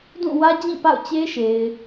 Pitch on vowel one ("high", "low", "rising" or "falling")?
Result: falling